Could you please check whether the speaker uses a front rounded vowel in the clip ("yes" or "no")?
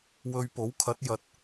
no